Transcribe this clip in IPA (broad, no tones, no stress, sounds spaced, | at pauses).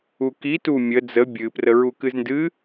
u k i t u mʲ ə d͡z ə bʲ ɨ p r ə ɹ u k ɨ z n d ɨ